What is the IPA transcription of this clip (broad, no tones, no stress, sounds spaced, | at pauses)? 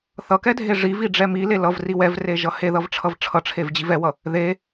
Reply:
θ ʌ k ɛ dʱ e ʐ i v i ɖ͡ʐ ɛ m i l e l ʌ v r i w ɛ v r e ʒ ʌ h e ð ʌ v ʈ͡ʂʰ ʌ v ʈ͡ʂʰ ʌ ʈ͡ʂʰ e v d͡ʑ i v ɛ w ʌ | ð e